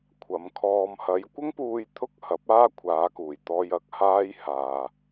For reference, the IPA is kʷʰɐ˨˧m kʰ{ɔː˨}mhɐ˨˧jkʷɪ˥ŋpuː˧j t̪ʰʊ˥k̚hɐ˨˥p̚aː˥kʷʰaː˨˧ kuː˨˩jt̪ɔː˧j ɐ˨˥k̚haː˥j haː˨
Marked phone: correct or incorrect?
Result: correct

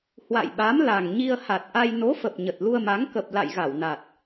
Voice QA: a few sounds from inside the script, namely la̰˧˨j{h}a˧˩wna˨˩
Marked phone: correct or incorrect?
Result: incorrect: ɣ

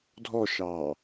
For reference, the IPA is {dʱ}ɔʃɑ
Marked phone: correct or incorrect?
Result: correct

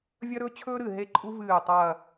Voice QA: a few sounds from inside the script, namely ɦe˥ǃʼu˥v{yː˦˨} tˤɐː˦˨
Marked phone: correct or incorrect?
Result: incorrect: ɨː˦˨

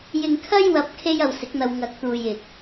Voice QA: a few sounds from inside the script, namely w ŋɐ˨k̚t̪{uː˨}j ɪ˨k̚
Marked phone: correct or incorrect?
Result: correct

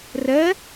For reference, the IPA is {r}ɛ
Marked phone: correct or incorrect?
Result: correct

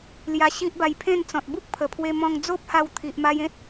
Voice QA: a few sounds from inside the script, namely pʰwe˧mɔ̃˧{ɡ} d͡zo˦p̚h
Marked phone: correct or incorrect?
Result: incorrect: ŋ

